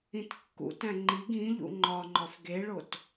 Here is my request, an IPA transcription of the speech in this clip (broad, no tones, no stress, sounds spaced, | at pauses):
ĩ t kː ṵ t æ̃ ŋ͡ǃ i ɡ ĩ ʎ ṵ ŋ͡ǃ ɒ ŋ͡ǃ ɒ f ɡ e ɭ o t